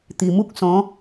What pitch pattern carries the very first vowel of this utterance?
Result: low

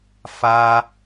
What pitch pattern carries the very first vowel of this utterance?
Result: high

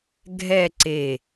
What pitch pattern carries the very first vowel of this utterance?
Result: falling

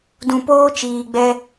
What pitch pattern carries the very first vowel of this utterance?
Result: low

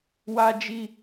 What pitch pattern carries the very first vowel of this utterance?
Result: low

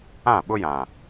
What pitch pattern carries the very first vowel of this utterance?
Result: falling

